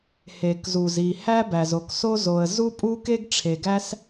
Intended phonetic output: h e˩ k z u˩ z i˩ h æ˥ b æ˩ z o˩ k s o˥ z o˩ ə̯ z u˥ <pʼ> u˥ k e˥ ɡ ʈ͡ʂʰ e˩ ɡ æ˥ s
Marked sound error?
no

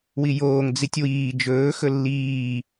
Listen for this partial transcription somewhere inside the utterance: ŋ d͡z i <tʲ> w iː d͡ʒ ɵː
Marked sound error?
no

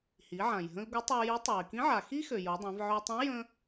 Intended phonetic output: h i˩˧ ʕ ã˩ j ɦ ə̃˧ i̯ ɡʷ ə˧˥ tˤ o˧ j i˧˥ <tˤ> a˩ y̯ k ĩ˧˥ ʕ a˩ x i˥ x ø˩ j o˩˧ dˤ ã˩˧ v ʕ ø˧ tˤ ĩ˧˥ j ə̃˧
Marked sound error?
no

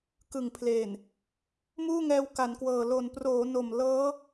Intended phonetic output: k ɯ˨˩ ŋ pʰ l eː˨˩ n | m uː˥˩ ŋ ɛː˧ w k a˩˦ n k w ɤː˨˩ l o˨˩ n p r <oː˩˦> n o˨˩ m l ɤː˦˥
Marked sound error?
no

